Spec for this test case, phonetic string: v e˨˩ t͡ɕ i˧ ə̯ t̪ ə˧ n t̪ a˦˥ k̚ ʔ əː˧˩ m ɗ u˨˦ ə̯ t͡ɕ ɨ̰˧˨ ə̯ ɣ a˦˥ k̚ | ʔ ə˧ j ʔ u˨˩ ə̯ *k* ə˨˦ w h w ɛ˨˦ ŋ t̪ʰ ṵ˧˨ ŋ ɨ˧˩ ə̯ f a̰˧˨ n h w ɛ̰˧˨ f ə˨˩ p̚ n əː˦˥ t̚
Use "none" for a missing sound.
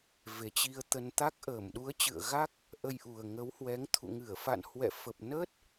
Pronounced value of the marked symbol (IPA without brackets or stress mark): ŋ